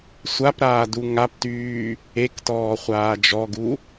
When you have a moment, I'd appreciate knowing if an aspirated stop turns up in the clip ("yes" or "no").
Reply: no